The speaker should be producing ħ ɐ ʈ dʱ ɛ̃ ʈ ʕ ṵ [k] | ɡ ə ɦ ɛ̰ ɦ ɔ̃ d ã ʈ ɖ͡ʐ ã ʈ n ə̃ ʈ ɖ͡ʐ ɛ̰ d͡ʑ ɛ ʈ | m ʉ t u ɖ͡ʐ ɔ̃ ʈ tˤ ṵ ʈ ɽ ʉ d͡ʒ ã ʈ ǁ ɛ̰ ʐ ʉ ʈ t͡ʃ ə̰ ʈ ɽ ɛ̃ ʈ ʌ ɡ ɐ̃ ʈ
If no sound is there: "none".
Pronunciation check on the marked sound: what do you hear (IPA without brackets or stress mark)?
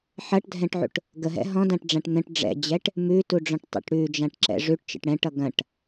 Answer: ʈ